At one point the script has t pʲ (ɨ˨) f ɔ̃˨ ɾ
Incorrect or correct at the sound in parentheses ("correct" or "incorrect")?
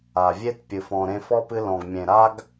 correct